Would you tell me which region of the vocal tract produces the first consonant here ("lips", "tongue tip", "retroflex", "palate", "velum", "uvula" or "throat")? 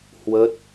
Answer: throat